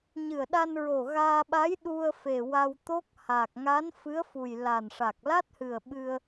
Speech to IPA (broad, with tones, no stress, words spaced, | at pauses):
ɲɨ˨˩ə̯ɗa˧nɹo˨˩ ɣaː˧ɓa˧˥j ɗu˧ə̯ fe˨˩wa˧wt̪o˦˥k̚ ha˨˩k̚ŋa˧˥nfɨ˧˥ə̯ fu˨˩jla˨˩nʂa˨˩k̚ la˦˥t̚hɨ˨˩ə̯ ɓɨ˧ə̯